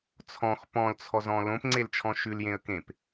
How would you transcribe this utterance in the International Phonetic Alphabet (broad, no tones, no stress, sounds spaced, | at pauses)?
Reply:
t͡sʰ ɔ̃ x p ɔ̃ l t͡sʰ ɔ z ɔ̃ l õ p ŋ͡ǀ e l t͡ʃʰ ɔ̃ ʃ ʉ l j ẽ ə̯ k ẽ p